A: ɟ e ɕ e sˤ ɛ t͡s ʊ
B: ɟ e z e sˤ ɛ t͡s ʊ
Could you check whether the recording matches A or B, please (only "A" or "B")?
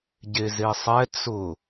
B